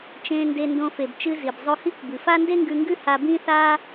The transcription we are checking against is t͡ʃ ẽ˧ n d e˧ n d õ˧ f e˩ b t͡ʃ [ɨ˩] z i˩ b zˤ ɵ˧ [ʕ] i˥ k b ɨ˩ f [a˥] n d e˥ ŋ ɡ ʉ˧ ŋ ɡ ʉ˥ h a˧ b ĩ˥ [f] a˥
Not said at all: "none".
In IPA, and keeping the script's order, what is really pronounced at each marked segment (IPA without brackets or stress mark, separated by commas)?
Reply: ɨ˧, h, a˥, θ